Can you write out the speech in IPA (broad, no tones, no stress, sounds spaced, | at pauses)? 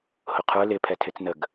h ʊ qʰ ə˞ l ɪ pʰ ɛ tʰ ɪ t͡s n ə ɡ